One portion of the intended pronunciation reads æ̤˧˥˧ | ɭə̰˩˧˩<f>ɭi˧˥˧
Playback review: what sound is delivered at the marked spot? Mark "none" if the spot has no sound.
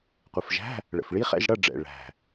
f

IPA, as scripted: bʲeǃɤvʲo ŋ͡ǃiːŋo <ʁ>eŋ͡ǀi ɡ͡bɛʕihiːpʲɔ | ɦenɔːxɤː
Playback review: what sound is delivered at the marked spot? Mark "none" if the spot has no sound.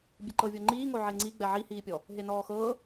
ʕ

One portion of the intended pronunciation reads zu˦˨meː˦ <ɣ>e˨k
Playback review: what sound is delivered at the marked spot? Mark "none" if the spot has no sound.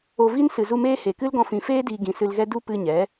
h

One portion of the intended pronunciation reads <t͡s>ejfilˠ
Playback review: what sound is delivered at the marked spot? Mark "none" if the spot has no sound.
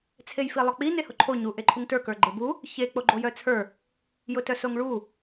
t͡sʰ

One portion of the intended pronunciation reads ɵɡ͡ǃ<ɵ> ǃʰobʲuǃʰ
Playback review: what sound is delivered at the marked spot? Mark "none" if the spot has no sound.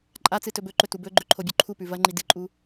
ɵ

